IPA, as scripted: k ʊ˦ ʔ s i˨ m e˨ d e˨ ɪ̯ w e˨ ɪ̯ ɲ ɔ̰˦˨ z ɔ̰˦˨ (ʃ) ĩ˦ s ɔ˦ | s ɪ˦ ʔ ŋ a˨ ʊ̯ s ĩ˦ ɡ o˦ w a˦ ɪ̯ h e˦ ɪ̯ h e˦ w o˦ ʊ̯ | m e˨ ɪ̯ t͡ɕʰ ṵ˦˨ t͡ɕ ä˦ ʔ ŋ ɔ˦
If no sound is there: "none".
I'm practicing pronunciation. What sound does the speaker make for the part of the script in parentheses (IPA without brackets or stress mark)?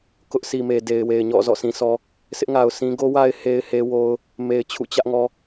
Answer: s